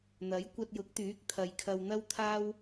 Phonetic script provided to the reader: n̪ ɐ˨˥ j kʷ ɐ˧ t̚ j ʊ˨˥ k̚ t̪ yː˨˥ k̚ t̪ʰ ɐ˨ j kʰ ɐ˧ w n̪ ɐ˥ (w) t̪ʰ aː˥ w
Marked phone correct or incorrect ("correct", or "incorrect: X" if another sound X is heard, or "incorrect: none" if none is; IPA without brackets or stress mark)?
correct